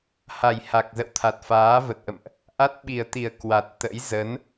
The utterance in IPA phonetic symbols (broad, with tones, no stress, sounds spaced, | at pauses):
h a˨˩ j h a˨˩ k̚ z ə̰˧˨ w t̪ʰ a˨˩ t̚ f aː˨˦ v ə˨˩ t̚ ʔ ə̰˧˨ m ʔ | ʔ a˦˥ t̚ ɓ i˨˩ ə̯ t̪ i˨˩ ə̯ k w a˨˩ t̚ t̪ ə̰˧˥ j z ə˨˦ n